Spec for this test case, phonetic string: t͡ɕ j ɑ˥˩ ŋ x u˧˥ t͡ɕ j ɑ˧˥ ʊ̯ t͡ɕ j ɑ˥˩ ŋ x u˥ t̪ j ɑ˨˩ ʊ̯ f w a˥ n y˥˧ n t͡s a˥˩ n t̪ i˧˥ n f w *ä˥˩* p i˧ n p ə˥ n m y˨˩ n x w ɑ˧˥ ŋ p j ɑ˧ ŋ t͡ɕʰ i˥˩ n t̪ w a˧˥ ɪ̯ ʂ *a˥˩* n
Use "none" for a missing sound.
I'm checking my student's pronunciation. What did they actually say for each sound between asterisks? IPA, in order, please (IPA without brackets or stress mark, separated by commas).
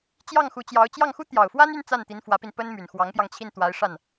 ä˧˥, a˥˩